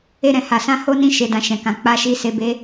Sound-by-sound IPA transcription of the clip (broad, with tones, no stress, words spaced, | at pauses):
e˦ɾɛ̃˦˨ha˧sã˦ ho˦ nĩ˦ʃe˧dã˧ ʃɛ̃˨kã˨ k͡pa˧ʃi˧se˧ be˧